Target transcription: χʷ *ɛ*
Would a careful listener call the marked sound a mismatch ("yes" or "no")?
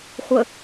yes